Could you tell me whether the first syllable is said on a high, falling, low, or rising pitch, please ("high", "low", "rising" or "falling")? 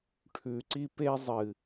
low